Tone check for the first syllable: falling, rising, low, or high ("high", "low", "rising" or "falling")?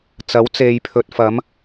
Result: rising